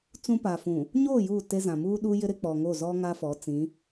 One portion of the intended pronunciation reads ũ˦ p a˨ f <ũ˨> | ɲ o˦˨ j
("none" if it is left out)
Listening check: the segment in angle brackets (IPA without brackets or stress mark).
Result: ũ˨